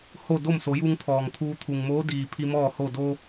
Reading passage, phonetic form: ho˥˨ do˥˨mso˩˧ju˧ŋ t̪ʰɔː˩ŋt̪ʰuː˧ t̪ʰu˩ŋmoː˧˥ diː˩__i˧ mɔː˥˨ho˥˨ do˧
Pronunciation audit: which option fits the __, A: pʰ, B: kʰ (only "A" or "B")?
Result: A